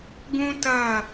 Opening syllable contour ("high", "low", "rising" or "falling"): high